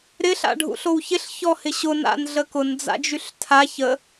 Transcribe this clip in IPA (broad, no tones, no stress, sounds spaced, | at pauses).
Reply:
ɾ ɪ ɬ a̰ ɖʱ ṵ ɬ o w ç ɪ ɬ ç ɔ h ɪ ɕ ʊ n a̰ n ɮ ə k ʊ n d͡z a̰ d͡ʒ y ɬ tʰ a ç ə